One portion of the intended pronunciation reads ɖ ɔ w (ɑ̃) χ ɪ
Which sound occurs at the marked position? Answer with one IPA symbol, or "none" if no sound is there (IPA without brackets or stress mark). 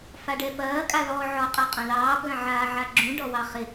ɑ